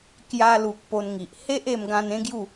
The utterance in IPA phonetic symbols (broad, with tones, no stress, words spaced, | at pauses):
kja˧lu˨k̚ po˧nŋi˨ʔ he˦ʔ e˧mɡã˧n ẽ˦ɡju˥˧